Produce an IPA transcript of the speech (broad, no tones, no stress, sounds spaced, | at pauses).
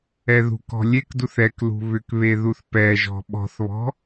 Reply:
ɛ ð ṳ k ɔ̤ lʲ e k d u θ ɛ k l ṳ β ʏ k β e ð u θ p ɛ ʒ ɔ̤ ɓ ɔ̤ θ β ɔ̤